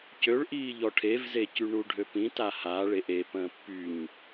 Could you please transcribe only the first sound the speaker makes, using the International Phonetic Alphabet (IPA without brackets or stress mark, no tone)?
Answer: c